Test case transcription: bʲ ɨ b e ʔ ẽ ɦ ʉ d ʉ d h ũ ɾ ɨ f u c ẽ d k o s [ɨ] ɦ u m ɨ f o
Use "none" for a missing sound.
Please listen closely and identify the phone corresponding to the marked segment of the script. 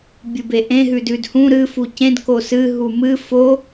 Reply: ɨ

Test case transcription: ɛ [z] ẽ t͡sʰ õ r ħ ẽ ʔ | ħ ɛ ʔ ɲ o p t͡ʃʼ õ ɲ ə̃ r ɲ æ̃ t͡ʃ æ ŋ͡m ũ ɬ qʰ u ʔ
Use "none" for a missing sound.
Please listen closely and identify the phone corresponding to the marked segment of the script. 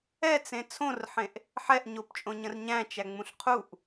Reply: t͡s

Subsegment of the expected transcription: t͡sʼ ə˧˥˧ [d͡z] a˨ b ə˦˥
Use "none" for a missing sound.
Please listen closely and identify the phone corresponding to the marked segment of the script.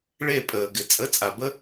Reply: t͡sʼ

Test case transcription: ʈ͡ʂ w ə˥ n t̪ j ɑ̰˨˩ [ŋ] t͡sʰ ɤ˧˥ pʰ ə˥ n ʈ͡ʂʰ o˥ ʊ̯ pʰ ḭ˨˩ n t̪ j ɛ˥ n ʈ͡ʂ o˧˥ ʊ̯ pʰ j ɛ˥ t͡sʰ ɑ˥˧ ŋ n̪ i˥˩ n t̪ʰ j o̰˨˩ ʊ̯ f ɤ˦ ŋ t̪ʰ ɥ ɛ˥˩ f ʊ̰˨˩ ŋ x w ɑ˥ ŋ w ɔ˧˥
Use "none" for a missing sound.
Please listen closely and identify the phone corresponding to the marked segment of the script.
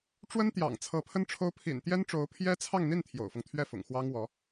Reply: ŋ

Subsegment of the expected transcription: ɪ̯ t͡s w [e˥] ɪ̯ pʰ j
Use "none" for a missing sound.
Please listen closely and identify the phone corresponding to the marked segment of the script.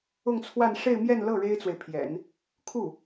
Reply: e˨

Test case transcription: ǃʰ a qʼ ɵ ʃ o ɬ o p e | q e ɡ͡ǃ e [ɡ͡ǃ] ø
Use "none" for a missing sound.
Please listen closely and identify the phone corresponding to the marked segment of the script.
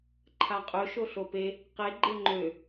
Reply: ŋ͡ǃ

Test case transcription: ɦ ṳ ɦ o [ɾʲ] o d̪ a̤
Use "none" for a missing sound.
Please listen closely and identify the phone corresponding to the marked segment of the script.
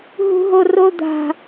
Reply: r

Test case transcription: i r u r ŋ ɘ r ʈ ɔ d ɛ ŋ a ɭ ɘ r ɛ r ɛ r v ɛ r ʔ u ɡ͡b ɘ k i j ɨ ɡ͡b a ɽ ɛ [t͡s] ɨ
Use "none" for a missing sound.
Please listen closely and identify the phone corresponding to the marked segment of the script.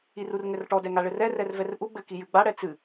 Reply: t͡s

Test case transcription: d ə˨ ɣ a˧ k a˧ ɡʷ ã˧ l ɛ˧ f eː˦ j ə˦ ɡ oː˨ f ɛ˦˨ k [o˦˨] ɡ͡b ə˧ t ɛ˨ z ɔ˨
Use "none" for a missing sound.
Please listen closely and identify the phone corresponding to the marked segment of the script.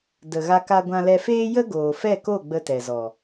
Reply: o˦˨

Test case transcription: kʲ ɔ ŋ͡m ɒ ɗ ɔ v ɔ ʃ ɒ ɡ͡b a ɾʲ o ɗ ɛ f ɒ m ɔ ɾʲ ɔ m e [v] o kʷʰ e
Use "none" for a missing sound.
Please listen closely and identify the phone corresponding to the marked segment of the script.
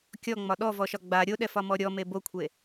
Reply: b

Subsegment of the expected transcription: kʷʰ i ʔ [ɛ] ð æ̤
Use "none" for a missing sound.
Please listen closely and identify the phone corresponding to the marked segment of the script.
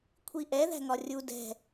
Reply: ɛ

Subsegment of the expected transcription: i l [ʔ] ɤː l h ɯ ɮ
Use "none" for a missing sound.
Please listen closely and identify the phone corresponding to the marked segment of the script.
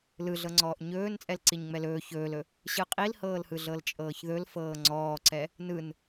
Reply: h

